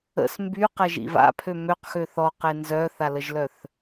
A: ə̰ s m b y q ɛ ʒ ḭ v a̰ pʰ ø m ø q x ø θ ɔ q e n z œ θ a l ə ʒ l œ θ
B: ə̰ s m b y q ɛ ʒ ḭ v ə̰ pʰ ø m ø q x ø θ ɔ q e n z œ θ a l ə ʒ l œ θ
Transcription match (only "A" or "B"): A